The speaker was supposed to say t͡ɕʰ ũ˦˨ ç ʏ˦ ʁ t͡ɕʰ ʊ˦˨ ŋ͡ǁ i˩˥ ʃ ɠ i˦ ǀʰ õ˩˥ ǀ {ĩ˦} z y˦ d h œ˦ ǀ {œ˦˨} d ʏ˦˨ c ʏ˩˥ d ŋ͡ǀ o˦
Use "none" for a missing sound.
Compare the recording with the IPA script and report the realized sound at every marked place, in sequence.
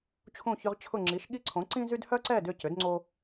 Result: ĩ˦, ɛ˦˨

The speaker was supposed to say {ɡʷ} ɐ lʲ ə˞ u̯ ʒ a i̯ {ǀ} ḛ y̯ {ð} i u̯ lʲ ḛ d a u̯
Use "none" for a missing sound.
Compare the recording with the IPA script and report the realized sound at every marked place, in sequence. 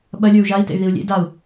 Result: ɓ, t, ð

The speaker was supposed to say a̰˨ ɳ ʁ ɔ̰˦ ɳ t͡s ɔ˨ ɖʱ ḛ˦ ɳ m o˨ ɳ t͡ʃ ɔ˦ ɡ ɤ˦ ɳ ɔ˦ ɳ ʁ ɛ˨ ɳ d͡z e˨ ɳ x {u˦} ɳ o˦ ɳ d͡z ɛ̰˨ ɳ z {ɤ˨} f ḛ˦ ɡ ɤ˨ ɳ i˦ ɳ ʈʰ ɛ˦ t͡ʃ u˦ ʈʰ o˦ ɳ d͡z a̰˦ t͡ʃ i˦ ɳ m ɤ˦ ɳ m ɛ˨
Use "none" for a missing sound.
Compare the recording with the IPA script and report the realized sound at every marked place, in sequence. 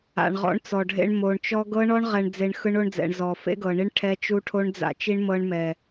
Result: ɯ˦, ɔ˨

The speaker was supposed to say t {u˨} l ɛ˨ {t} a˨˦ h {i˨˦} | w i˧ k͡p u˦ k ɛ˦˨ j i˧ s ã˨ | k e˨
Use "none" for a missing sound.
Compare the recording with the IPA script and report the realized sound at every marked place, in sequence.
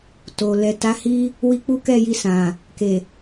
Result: o˨, t, i˦

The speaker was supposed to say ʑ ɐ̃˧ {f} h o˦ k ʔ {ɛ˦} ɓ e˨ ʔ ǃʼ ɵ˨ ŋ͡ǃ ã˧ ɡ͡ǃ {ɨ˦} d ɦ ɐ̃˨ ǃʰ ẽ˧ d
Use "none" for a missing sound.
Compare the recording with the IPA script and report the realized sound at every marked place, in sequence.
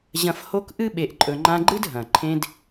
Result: f, ɨ˦, ɨ˦

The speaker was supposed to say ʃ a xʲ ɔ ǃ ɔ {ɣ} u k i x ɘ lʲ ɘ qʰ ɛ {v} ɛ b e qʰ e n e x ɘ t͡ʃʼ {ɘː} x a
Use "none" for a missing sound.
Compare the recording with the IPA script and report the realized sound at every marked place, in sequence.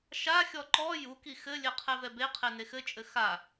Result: j, v, ɘ

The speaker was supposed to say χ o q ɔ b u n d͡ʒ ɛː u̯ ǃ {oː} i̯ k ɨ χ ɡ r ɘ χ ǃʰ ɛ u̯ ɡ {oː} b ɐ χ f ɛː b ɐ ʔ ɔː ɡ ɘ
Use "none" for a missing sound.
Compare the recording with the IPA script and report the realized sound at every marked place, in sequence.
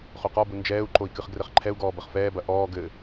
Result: o, ɔː

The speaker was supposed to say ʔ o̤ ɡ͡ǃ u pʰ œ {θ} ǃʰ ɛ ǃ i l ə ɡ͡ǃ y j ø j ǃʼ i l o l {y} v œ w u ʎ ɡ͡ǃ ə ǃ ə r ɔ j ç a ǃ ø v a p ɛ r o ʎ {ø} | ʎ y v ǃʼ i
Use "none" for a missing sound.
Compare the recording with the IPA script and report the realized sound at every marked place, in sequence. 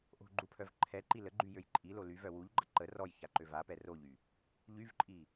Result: v, y, y

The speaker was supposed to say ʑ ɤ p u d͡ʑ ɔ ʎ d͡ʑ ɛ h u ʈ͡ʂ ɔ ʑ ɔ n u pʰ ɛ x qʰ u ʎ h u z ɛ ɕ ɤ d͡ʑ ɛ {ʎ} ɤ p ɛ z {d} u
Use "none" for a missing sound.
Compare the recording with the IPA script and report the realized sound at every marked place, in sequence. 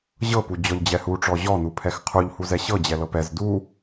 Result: l, d

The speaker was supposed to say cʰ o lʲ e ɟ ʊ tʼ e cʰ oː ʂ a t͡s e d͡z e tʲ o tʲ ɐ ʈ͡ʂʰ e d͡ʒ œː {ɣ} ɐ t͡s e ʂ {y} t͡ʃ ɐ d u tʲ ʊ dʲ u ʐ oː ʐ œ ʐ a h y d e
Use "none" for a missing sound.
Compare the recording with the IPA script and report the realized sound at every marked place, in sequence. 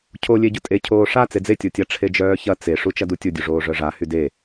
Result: ç, u

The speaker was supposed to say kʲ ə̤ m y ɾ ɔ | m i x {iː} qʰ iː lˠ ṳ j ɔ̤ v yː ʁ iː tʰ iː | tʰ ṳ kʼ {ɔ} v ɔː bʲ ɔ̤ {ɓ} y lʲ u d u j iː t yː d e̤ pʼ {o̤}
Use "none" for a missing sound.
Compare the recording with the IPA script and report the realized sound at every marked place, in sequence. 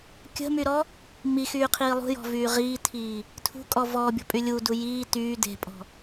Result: yː, ɔ, pʼ, ɔ̤

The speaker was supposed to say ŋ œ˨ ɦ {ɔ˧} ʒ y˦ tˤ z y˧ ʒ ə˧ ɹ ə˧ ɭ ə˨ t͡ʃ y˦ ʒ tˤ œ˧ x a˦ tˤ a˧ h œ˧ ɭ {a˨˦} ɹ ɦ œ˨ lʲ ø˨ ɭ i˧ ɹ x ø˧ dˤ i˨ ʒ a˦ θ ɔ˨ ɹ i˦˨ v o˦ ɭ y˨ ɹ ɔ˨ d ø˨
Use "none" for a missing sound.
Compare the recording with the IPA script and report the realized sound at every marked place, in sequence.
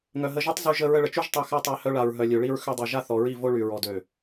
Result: ə˧, a˨

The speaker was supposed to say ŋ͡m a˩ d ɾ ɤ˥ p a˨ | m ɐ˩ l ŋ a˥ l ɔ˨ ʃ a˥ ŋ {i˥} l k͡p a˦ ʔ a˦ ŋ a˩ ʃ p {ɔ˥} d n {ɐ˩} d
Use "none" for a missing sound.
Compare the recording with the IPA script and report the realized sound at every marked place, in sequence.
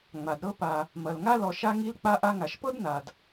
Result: i˥, ɤ˥, a˩

